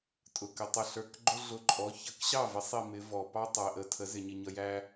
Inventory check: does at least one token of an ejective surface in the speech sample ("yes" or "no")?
yes